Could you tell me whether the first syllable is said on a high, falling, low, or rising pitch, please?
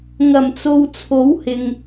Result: low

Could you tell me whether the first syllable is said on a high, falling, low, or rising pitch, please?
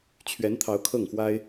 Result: rising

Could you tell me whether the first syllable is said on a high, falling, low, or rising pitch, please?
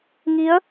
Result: rising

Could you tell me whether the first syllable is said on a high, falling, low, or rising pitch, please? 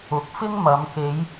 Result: rising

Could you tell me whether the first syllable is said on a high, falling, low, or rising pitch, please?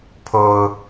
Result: low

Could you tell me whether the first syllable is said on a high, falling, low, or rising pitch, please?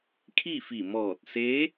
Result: falling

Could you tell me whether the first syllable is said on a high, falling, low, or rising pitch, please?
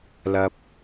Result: low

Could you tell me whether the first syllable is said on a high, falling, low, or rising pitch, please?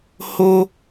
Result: high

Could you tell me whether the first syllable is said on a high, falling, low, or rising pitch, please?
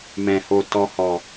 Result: low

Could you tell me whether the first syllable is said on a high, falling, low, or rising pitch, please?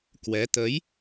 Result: rising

